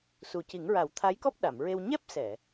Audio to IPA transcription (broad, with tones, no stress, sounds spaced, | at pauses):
s u˨˩ c i˨˩˦ ŋ ɹ a˨˩˦ w t̪ʰ a˧˥ j k ɔ˦˥ p̚ ɗ a˨˩˨ m ɹ e˧ w ɲ ɛ˦˥ p̚ s ɛ˨˩˨